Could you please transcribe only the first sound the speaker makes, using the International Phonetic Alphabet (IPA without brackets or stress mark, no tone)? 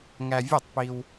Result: ŋ